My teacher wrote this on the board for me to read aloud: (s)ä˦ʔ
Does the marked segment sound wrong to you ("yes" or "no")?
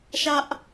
yes